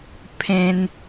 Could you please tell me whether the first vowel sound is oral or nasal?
nasal